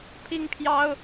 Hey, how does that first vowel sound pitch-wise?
high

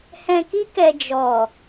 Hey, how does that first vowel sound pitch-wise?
low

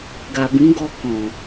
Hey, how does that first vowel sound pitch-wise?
low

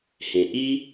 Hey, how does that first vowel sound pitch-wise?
low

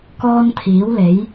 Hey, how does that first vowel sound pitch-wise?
high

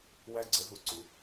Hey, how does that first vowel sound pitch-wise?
high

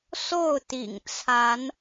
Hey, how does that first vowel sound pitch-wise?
falling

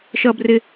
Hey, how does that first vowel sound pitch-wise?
high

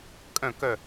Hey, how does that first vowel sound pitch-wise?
low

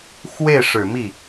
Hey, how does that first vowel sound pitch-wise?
falling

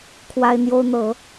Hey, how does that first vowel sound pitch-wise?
high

